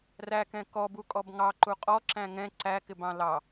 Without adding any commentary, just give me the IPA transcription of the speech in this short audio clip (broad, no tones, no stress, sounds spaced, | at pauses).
r æ k ɛ̃ k ɔ b u kʼ ɔ b ŋ ɑ ǃ u qʼ ɔ ǁ æ̃ ŋ ɛ̃ ǀ æ k ɪ b ɑ̃ l ɑ